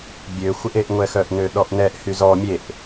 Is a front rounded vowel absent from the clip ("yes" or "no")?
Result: no